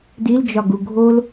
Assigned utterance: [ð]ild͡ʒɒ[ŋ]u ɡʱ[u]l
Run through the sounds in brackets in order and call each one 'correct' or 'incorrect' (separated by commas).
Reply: incorrect, incorrect, incorrect